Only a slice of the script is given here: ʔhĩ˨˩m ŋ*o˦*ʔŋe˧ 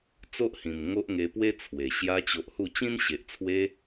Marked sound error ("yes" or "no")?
no